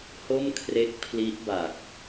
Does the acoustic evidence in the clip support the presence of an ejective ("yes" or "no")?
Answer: no